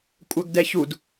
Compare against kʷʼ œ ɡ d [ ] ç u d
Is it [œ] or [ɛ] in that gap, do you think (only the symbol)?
ɛ